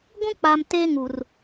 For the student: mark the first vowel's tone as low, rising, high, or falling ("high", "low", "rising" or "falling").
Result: high